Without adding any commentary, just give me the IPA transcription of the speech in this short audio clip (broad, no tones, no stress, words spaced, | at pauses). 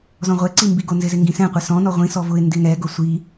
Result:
zɔ̃ʁʷɛǀi mbiɡonzɪzɪ ŋɡĩsɛ̃qʷɛ sɔ̃nɔ ʁʷĩsɔ vʊɪ̯ ndɪŋɛɡʊ sʷi